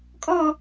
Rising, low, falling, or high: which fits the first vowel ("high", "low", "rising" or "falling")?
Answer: falling